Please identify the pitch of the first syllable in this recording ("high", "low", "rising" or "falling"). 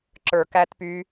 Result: low